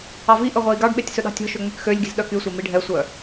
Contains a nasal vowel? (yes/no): no